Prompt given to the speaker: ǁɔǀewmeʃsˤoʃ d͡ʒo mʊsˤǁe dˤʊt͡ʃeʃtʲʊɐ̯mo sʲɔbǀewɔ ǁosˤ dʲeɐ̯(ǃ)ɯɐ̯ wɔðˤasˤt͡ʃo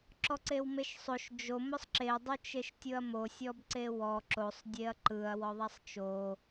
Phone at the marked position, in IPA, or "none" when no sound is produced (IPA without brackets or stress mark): ǃ